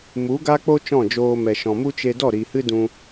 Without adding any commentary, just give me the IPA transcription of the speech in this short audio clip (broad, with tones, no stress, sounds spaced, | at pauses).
m u˨˦ ɡ a˦ k͡p o˦ t͡ʃ ɔ̃˦˨ d͡ʒ oː˧ m ɛ˨ ʃ ɔ̃˨ m u˦ t͡ʃ e˧ d ɔ˦˨ ɾ i˨ h ɨ˦ d ũ˧